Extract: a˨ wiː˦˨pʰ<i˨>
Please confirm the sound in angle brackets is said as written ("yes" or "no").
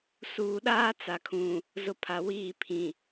no